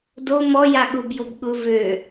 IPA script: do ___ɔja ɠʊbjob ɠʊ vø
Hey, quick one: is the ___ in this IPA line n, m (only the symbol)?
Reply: m